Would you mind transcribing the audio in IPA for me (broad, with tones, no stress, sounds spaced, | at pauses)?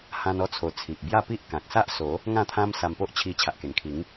h ã˧ n ɔ˧ t͡sʰ o˨˩ t͡sʰ i˨ ʔ b j a˥˧ p i˦ ʔ k ã˨ k̚ s a˦ ʔ s o˨˦ | ŋ ã˥˧ t̪ʰ ã˦ m s a˧ m p o˦ ʔ t͡ɕʰ i˧ t͡ɕʰ a˨ ʔ k e˨˩ n kʰ i˨˦ ŋ